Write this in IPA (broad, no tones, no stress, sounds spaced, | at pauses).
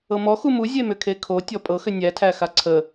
ɤ m ɔ x u m u zʲ e m ʏ kʰ e kʰ o tʲ ɔ pʼ ɤ x ʏ nʲ æ tʰ æ x a ǀʰ ə